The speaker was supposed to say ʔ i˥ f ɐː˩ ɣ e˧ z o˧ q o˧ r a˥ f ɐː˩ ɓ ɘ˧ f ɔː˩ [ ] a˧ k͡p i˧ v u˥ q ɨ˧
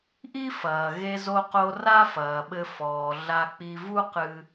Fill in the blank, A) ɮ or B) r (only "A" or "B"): A